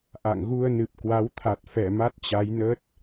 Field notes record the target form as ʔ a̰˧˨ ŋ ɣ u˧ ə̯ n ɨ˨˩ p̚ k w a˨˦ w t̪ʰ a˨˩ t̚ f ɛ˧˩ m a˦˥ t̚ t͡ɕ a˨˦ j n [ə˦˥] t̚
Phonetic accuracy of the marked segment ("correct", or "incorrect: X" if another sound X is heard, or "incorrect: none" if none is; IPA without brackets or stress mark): correct